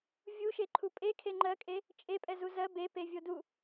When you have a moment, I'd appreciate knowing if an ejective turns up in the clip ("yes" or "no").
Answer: yes